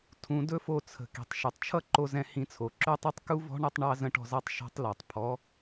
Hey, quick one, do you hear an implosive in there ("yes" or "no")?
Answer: no